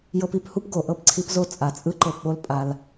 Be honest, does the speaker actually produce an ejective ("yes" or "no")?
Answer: yes